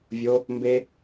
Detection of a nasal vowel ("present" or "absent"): absent